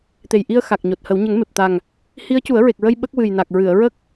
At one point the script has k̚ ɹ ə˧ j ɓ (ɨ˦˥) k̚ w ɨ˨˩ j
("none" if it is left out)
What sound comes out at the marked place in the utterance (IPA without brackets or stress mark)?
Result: ə˦˥